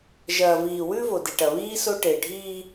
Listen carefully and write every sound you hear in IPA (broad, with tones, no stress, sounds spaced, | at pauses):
ʒ ɐː˨ v iː˨ w ʉ˦ v o˨ d i˨ ʈ ɐ˨ β iː˦ s o˦ ʈ e˨ ɖʱ iː˦